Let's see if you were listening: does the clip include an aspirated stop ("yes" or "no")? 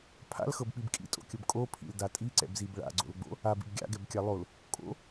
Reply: yes